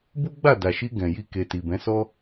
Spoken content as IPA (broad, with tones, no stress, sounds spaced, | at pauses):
b u˦ ɡ͡b a˦˨ d a˨ ʃ i˧ ɡ ɛ̃˨ j i˧ k e˨ t i˨ b ɛ̃˨˦ s ɔ˦